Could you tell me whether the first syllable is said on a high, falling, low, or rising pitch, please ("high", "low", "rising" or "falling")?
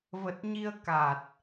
low